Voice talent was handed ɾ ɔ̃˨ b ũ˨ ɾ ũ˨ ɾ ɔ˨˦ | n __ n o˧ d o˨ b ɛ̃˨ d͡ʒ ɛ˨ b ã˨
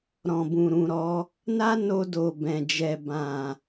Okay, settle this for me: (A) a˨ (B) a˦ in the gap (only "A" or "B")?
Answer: B